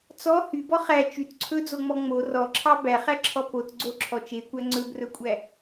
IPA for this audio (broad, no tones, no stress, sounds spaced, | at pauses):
t͡s ɔ h y b ɔ χ æ t͡ʃ y t ǀʰ ɵ d͡z o ŋ͡m ɔ ŋ͡m o r ɔ ǁʰ ɑ b æ χ æ ǁʰ ɔ p o t ɡ͡ǀ o ǁʰ ɔ t͡ʃ e kʷ æ ŋ͡ǀ ɵ b r ɵ kʷʼ æ